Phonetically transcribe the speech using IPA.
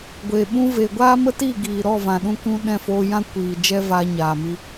ɡʷ e˨ ɓ ũ˧ v e˨ ɡʷ aː˦ m ə˦ t i˦˨ ɡ iː˨ ɾ ɔ˦˨ v ã˨ ɗ ũ˧ k ũ˧ ɗ ɛ̃˦˨ f oː˧ j ã˦ kʷ iː˨ d͡ʒ ɛ˦ v aː˧ ɲ aː˨ m i˧

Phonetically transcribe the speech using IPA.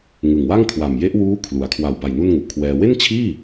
ŋ ɯ˨˩ ŋ w a˥˩ ŋ kʰ w a˨˩ m j e˦˥ ʔ w uː˦˥ kʰ l u˩˦ a̯ kʰ w a˨˩ w b a˨˩ j n u˥˩ n ŋ u˨˩ ʔ kʰ w ɛː˧ w e˥˩ n t͡ɕʰ iː˥˩

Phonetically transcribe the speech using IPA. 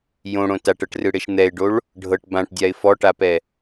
j õ ɽ õ t a ʈ ɤ ʈ r ɯ ɽ e ʃ n̪ ɛ ɪ̯ ɖ o ɭ | ɖʱ ɤ ʈ b ã ʈ dʲ a ɪ̯ f ɔ ʈ a p ɛ

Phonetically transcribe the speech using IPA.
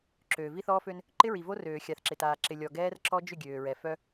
ǁ øː˨ v i˦ θ ɔː˦ f ø˦ n | ǃ ɪ˦ ɹ i˨ v o˦ r øː˨ xʲ a˨ θ ǁ ɪ˨ t aː˨ ǁ ɪ˨ lʲ ɔ˨ ɡ ɛː˦ r ǁ ɔ˦ d͡ʒ ʏ˦˨ ɡʲ øː˨ ɹ ɛ˨ f œ˦

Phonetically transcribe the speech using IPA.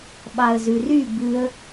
ɓ ɑ ə̯ z ʉ r y b ʉ ə̯

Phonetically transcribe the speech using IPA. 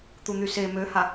t̪ u n̪ y s e m ø h a

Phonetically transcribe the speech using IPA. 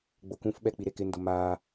ɡ͡b o k ũ f ɓ ɛ k͡p i ɾ e k ɪ n d ʊ m a

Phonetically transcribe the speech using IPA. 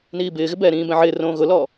n iː b ɪː ɣ ɪ b ɛː ɾ ĩː b ɛ̃ ʕ ɪː r õː ɣ ʊ l ɔ

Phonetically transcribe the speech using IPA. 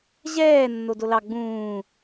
ʑ ɛː nː o d o l ɑ ɡ͡b ũː

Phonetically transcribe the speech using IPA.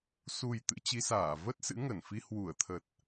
s u˨˩ j t̪ ɨ̰˧˥ t͡ɕ i˨˦ s aː˧˩ v ə˦˥ t̚ s ɨ̰˧˥ ŋ ə˧˩ n f i˧ h w u˧˩ ə̯ t̪ʰ ə˨˩ t̚

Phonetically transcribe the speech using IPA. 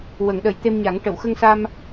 w ə˨˩˦ ŋ ɗ ə˨˩˦ j t̪ e˧ m ɲ a˨˩˦ ŋ ʈ ə˨˩˨ w x ə˧ ŋ s a˧ m

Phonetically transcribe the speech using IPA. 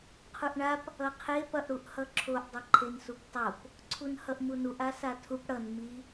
qʰ u ʔ ɳ a p | ʌ qʰ e p ʌ ʔ ɽ u ʔ h ʌ ǁʰ o ʔ dˤ ʌ ǃʰ e n s u p tˤ o p | ǀʰ u n h ʌ ʔ m u n u ʔ a s a tʰ u p ɽ ʌ n m i

